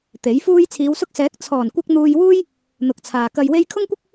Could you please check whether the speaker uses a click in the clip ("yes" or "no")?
no